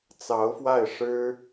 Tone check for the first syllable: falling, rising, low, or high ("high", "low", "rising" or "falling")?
rising